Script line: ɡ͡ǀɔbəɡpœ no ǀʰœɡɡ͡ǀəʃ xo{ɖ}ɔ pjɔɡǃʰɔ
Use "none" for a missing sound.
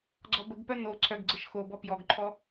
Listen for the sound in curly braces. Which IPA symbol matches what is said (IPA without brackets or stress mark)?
b